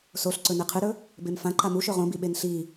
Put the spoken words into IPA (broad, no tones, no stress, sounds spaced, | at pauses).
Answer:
s o ɬ ǀ ɵ n e qʰ ɨ ɾ ɵ | b e m f ã ǃ a m u ʃ ɵ ʁ õ b i ɓ e n ɬ i